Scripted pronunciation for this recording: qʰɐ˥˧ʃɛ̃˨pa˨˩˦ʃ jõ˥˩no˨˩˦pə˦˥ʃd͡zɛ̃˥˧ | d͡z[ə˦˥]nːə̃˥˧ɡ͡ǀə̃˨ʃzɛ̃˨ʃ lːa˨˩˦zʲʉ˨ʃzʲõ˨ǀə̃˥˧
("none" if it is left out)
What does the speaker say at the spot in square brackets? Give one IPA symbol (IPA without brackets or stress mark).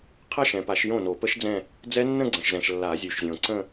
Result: ɛ˦˥